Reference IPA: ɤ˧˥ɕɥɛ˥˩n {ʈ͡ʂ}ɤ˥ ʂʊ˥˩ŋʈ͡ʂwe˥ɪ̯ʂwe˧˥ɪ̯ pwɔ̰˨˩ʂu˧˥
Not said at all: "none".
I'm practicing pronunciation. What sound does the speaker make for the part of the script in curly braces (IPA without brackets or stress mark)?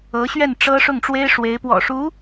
ʈ͡ʂ